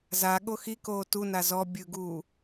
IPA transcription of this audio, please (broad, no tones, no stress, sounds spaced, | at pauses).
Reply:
z a ɠ o x i k oː t u n a z ɔ bʲ ɯ ɡ uː